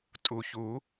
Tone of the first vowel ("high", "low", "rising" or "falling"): low